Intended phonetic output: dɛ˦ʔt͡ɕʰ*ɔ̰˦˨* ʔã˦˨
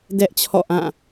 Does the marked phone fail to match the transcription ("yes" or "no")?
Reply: no